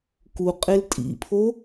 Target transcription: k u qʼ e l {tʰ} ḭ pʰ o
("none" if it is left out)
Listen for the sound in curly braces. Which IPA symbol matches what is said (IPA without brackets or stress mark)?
tʼ